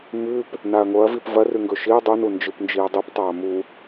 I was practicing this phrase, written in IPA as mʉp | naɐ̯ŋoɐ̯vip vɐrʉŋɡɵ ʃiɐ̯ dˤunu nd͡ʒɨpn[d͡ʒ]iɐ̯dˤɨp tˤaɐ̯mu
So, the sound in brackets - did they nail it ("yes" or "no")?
yes